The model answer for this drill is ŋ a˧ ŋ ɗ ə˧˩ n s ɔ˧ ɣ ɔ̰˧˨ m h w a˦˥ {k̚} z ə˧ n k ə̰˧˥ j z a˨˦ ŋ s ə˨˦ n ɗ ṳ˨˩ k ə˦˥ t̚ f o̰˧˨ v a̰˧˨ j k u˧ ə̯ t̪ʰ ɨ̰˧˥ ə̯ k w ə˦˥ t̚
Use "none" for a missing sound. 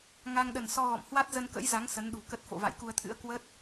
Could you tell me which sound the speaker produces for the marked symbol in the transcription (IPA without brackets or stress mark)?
t̚